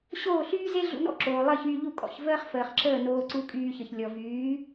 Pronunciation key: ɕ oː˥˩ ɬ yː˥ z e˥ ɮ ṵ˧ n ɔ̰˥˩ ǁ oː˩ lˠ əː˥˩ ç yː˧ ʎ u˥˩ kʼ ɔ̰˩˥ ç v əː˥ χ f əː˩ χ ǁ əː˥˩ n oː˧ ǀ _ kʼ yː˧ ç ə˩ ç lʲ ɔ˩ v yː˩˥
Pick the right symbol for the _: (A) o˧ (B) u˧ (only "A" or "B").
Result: B